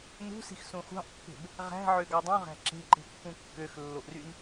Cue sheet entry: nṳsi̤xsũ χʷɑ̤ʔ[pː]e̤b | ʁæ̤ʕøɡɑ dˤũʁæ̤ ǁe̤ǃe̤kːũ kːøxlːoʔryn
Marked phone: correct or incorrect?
correct